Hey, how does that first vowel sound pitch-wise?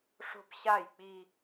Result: high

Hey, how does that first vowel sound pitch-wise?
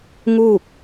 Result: falling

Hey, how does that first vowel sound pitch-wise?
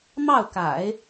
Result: falling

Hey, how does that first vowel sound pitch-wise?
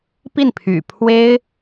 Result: falling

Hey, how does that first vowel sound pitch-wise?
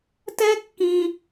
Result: high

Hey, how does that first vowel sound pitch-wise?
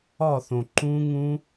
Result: falling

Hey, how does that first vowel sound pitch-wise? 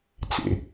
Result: low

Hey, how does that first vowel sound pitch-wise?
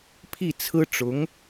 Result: falling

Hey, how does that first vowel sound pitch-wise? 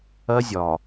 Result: high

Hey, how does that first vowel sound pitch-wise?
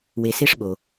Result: low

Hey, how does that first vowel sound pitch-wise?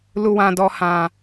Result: low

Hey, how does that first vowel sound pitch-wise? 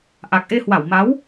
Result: low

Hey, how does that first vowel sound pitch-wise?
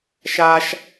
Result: high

